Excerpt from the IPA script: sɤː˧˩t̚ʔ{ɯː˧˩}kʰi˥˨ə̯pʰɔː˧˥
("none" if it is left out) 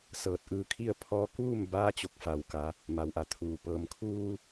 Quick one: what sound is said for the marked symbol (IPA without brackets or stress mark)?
ɯː˧